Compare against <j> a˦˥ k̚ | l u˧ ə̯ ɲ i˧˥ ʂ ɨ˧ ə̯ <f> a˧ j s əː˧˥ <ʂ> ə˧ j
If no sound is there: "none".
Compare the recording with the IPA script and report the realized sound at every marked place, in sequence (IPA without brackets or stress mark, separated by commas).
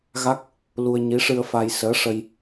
ɣ, f, ʂ